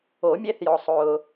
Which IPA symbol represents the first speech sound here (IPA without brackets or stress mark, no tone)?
o